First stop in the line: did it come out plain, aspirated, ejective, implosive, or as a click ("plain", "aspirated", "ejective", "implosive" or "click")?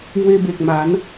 plain